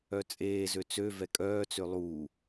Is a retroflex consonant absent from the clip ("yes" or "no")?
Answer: yes